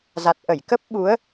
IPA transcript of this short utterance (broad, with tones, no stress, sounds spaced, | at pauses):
z a˨˩ t̚ ʔ ə˧˩ j k ə˦˥ p̚ ɓ u˨˦ ə̯